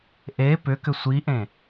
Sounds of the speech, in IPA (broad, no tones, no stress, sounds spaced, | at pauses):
ʔ e p ʏ k ʏ sʷ i ʔ ẽ